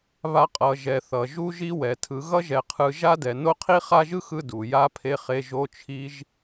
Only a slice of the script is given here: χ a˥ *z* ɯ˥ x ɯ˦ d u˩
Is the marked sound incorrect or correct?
incorrect